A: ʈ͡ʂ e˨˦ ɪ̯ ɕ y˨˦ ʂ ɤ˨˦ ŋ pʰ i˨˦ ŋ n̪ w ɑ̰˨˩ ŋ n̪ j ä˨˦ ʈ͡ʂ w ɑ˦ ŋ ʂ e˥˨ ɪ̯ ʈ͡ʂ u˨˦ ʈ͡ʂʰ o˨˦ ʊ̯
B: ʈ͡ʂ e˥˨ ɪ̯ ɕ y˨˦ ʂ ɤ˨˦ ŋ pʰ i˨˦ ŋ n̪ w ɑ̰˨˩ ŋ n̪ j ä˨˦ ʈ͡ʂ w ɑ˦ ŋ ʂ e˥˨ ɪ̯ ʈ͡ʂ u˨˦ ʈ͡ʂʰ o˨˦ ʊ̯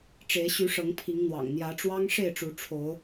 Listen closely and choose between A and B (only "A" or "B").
A